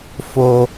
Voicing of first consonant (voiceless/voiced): voiceless